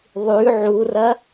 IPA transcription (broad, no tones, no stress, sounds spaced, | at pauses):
ðˤ ʉ ʕ u r ɐ